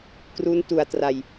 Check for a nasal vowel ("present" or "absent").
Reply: absent